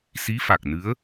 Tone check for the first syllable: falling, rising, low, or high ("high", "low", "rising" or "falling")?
rising